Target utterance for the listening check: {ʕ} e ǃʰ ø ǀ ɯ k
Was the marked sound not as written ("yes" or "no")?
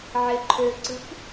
no